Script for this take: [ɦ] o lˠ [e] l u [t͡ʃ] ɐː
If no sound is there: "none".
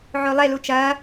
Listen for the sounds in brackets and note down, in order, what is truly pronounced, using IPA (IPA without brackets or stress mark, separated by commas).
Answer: ʕ, e, t͡ʃ